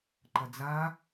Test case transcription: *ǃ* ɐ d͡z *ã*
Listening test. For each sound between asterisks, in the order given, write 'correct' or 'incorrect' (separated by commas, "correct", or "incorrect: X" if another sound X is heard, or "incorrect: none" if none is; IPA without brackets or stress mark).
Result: correct, incorrect: a